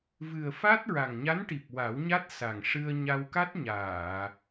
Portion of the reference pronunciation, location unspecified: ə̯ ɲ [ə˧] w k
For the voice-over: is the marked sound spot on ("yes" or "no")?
no